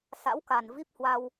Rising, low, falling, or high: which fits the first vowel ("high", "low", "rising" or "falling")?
rising